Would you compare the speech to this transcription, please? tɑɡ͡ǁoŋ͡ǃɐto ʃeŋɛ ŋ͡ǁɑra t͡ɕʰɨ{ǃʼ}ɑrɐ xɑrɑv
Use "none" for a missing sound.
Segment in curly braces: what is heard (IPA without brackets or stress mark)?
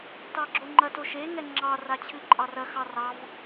ǃʼ